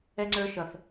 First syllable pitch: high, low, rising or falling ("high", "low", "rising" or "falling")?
high